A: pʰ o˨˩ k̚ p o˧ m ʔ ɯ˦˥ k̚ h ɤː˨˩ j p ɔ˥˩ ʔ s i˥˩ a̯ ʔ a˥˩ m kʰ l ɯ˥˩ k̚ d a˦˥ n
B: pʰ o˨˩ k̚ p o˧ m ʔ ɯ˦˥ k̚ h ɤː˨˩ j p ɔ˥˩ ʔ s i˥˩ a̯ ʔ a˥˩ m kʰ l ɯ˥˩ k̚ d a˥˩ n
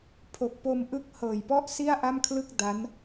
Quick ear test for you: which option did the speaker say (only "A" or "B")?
A